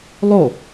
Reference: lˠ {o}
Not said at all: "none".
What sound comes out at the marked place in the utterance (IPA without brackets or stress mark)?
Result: o